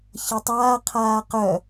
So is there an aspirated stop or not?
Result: yes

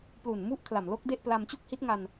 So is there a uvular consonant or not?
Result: no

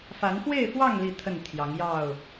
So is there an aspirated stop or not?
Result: yes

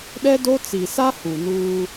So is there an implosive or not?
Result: yes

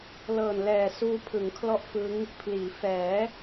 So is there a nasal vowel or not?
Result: no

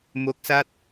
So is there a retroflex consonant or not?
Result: no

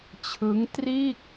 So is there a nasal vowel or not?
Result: no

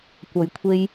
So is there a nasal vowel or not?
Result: no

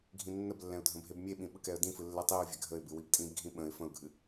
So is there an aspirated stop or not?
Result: no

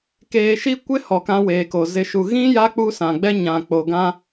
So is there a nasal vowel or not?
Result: yes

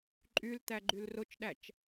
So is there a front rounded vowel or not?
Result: yes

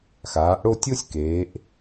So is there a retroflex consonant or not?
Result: yes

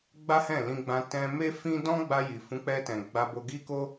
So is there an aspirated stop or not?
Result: no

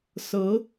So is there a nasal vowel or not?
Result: no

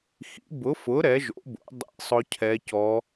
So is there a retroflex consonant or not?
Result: no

